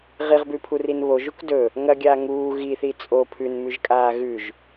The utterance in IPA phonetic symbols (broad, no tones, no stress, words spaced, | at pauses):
ʁiʁbʉpʰurin βoʒuk dɵ | ŋɐɡʲaː ŋuː ɣiθi t͡sʼo pʰʉnmʉʒkʼaː ɣʉʒ